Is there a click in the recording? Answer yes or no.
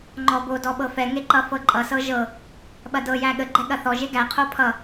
yes